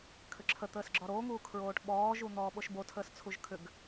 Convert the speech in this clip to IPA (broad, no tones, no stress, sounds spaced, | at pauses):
kʰ ʏ ǁʰ ə t̪ əː s ɡ͡ǁ ɔ ɾ o ŋ uː kʰ ɹ oː ʈ ɓ ɔː ʒ u n̪ ɔː ɓ o ʃ b o tʰ əː s t͡sʰ u ʒ kʰ ʏ ɡ